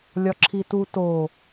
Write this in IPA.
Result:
lʲ ɒ ǁʰ i t u t o

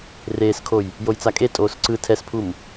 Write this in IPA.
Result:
r eː s kʰ o j | j o j t͡s a kʼ e tʼ oː s ǀ ɯ tʰ ɛ s pʰ u m

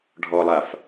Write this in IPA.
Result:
ɖʱ ɔ lˠ a f

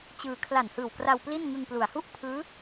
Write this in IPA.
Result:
t͡ɕ ɯː˧ kʰ l a˨˩ n h ɯː˨˩ w k r a˧ w p l i˥˩ n ŋ ɯ˧ ŋ p l u˩˦ a̯ h u˥˩ ʔ pʰ ɯː˦˥

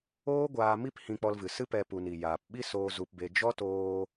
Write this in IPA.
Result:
oː˦ ɡʷ aː˧ m i˦ p h ĩ˧ k͡p ɔ˧ l v ɨ˨ s ɨ˦ p ɛ˧ p u˨ n i˨ j aː˨ p ɓ i˦ s oː˧ z u˧ p b e˧ d͡ʒ ɔ˦ t oː˧

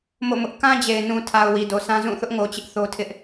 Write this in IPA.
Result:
m o̰˦˨ m ʊ˦ ʔ k ã˦ d͡ʑ e˨ ɪ̯ n ũ˨ tʰ a˨ ʊ̯ w i˨ d o˨ sʰ ã˦ z ũ˦˨ θ ʊ˦ ʔ ŋ o˨ t͡ɕ ɪ˦ ʔ θ o˦ tʰ ɪ˦ ʔ

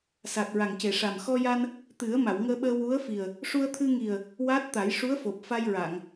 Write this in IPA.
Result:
s a˨˩ t̚ ɹ a˨˩ ŋ c e˨˩ ʂ a˨˩ m x ɔ˧ j a˧ n | t̪ ɨ˨˩˦ ə̯ m a˨˩˨ w ŋ əː˧ ɓ əː˧ w u˧˥ ə̯ f i˨˩ ə̯ | ʂ u˧ ə̯ t̪ʰ ɨ˧ ŋ i˨˩ ə̯ | w a˦˥ t̚ t̪ a˨˩˦ j ʂ u˧˥ ə̯ f o˨˩ p̚ f a˧ j ɹ a˨˩˨ ŋ

